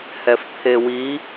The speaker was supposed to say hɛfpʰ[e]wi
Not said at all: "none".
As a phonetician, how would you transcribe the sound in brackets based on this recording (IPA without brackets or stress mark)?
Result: e